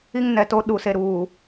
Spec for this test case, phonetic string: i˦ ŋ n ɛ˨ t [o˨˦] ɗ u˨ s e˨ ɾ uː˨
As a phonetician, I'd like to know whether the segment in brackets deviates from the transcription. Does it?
yes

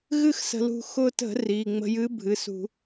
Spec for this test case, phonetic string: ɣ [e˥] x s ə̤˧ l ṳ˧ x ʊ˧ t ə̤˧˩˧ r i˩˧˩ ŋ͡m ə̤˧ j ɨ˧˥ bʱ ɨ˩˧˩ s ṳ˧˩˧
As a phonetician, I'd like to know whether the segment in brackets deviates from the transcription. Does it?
yes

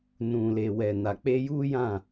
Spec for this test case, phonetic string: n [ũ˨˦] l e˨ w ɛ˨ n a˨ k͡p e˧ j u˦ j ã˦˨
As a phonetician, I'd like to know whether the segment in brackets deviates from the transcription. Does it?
yes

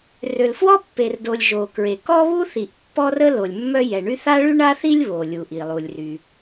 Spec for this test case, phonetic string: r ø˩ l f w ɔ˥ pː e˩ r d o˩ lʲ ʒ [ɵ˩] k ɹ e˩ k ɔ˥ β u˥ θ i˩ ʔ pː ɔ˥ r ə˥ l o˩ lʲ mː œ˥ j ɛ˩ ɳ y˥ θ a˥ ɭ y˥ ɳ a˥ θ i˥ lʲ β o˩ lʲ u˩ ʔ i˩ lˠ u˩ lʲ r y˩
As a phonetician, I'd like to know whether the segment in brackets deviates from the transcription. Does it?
yes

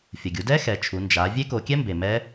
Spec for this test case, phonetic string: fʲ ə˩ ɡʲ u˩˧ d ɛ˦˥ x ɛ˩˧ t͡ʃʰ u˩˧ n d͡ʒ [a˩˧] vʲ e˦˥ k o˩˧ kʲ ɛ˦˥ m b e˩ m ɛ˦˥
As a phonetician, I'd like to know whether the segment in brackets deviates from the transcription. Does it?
no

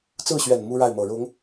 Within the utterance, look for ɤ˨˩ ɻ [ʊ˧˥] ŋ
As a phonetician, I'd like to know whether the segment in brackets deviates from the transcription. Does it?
no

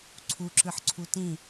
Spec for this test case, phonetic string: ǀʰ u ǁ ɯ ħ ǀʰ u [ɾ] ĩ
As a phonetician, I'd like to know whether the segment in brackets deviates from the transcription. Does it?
yes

